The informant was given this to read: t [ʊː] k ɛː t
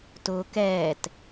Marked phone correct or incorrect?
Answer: correct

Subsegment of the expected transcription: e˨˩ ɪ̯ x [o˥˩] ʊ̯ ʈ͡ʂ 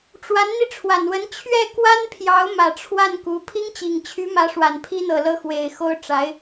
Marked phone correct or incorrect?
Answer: incorrect: o˥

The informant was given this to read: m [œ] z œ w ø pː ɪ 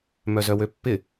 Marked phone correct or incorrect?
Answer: correct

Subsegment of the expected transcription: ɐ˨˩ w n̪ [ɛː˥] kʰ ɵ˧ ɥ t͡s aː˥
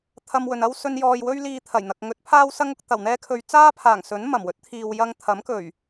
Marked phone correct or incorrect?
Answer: correct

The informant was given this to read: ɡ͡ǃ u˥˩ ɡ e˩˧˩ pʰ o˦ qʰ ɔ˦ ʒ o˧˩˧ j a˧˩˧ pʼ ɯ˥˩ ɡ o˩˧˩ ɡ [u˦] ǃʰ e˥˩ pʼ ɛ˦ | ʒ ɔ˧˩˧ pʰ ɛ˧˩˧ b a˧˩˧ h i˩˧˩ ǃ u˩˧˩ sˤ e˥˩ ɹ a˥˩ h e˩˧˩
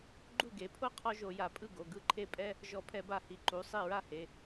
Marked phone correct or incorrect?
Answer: incorrect: ɯ˦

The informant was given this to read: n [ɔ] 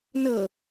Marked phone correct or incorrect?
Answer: incorrect: ɤ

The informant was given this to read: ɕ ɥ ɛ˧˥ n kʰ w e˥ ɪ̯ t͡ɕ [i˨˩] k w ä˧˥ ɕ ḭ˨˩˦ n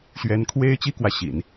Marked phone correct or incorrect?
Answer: incorrect: i˥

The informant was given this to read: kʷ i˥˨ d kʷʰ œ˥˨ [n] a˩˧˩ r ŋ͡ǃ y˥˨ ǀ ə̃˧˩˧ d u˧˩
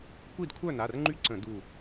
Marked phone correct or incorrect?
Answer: correct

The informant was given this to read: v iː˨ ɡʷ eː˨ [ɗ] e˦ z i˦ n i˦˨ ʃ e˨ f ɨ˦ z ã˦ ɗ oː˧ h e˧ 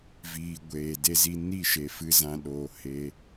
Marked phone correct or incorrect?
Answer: incorrect: d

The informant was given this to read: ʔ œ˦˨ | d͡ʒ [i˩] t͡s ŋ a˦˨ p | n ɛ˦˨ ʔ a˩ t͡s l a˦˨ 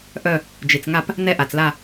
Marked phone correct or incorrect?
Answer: correct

